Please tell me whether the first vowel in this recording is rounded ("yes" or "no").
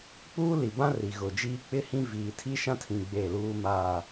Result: yes